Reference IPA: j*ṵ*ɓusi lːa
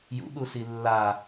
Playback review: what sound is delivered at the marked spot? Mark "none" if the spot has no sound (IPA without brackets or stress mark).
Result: ṵ